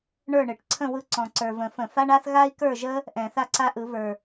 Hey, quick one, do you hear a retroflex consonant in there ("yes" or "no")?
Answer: yes